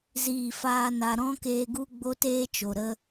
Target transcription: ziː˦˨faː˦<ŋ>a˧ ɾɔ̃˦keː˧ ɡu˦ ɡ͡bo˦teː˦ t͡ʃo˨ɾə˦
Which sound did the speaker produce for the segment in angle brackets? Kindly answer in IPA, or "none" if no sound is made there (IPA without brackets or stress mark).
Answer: n